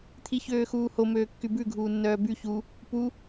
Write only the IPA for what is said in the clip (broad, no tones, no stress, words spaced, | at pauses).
t̪ʰiçøːxuːho møːkːybʉ ɡʱuːnːœːby çu | pu